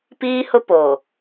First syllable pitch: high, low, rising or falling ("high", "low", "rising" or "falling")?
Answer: high